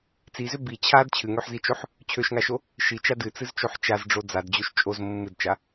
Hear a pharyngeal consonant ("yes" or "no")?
yes